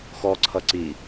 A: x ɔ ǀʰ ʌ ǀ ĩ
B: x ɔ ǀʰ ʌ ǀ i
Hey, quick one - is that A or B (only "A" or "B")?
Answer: B